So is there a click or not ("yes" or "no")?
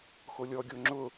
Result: yes